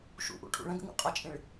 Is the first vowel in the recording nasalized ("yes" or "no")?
no